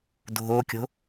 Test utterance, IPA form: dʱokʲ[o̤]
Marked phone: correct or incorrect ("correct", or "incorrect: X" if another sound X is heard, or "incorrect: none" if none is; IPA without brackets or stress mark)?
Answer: correct